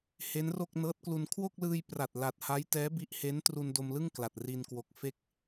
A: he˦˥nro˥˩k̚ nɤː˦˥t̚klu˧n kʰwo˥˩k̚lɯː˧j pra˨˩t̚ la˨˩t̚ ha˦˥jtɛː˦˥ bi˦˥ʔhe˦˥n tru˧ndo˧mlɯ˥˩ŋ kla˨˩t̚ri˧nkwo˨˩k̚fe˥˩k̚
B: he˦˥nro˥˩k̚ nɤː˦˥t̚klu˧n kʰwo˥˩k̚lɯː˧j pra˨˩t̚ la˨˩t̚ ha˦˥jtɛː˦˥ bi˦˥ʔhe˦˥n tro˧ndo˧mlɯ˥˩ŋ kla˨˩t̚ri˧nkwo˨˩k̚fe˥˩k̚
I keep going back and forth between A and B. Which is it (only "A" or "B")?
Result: A